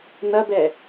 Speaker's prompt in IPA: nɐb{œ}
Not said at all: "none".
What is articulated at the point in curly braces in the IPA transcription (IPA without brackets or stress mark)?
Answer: ɛ